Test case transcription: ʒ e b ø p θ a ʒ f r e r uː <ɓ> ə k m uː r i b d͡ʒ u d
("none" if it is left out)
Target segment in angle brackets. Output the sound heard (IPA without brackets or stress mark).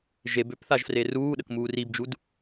ɗ